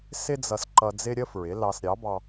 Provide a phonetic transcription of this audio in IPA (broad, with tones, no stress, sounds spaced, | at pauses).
s ɪ˥ d͡z ʌ˧ s ǃ ʌ˧ d͡z ɪ˥ ɾʲ ə˥ f ɹ ɪ˩˥ l ɑ˧ s ɾʲ ɑ˩˥ b ɑ˧